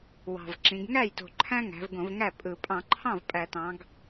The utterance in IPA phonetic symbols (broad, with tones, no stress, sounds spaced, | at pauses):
w ɑ̤˨˩ v ǁ ĩ˩˧ ɡ ŋ æ˥˩ j t o̤˨˩ ǃʰ æ̃˦ ŋ æ̤˩˧ v ɡ õ˧˩˧ v ŋ æ˥˩ pʼ ɯ˧˩˧ pʼ ɑ̃˧˩˧ ǃʰ ɑ̃˥˩ v pʼ æ˧˩˧ t ɑ̃˩˧ ɡ